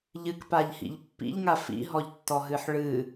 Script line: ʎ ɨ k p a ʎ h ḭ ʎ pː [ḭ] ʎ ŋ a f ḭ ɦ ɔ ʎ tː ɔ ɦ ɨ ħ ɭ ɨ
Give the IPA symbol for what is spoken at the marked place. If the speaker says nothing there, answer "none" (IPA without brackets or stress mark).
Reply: ḭ